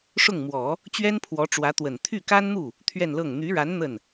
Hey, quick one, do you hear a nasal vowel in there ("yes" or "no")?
no